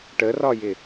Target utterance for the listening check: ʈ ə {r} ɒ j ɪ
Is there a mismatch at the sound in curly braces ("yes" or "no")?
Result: no